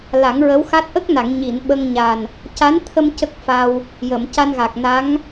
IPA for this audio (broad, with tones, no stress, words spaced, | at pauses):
la˨˩˦ŋɹə˧˥wxa˦˥t̚ ʔə˦˥k̚na˨˩˨ŋ ɲi˨˩˨n ɓə˧ŋɲa˨˩n | ca˧˥nt̪ʰə˧m cə˦˥k̚fa˧w | jə˨˩˨mca˧nɣa˨˩k̚ na˧˥ŋ